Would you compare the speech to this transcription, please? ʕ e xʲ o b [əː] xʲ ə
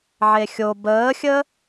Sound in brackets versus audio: correct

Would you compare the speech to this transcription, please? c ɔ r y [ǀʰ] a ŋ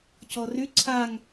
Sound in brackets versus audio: correct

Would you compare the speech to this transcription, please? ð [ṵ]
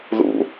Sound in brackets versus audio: correct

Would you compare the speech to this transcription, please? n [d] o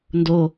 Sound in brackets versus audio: correct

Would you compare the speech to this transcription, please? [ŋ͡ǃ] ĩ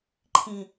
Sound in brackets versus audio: incorrect: ǃʰ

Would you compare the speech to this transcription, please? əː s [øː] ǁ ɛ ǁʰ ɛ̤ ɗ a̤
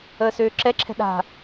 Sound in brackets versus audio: correct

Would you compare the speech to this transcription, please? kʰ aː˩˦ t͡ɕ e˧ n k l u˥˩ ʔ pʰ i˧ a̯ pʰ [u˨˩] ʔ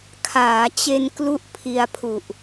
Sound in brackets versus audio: correct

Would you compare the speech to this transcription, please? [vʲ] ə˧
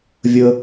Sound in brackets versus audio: correct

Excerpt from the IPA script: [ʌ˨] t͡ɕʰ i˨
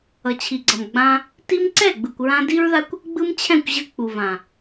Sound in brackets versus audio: correct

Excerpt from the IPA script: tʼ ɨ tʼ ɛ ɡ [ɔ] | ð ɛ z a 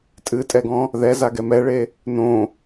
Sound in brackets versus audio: incorrect: ɔ̃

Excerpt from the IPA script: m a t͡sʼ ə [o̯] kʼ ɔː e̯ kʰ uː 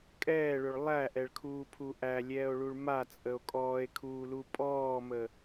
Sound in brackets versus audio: correct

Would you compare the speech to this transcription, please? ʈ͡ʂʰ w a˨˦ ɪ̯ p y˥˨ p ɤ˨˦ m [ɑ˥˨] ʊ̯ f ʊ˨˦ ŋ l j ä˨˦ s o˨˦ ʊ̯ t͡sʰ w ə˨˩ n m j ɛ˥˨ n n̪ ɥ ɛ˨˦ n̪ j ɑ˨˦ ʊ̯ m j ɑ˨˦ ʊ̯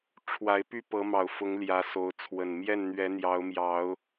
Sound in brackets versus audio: incorrect: ɑ˨˩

